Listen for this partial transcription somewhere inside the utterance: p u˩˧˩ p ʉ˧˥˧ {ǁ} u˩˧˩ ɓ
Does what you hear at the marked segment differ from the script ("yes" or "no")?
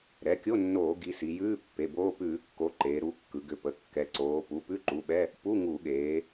yes